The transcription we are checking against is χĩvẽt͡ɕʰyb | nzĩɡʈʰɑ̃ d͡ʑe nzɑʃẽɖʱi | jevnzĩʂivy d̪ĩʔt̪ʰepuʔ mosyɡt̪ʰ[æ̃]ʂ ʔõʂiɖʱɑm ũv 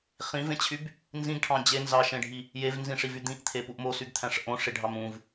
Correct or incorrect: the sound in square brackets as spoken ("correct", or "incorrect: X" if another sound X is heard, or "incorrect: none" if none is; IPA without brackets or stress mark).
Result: correct